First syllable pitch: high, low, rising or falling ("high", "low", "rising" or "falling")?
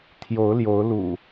rising